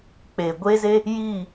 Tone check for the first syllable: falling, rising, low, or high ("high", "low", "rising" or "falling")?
low